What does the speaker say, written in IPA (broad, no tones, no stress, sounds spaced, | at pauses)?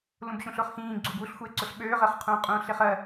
l ũ b ɕ ũ ɬ ʊ χ x ĩː ɡ͡ǀ u b u ɬ xʷ e ǀ ʊ ɬ ɓ øː ʁ ɜ χ qʰ ũː qʼ ũː ɬ e χ ɜ